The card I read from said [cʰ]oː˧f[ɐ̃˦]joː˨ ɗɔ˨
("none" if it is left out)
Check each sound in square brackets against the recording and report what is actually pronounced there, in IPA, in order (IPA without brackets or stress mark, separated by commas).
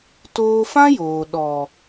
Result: t, ã˦